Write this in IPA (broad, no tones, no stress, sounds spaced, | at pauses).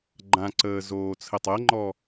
ɡ͡ǃ ã ǀ əː z oː t͡sʰ ə tˤ ɤ ŋ͡ǃ ɔ